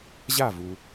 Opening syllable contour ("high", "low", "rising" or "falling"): falling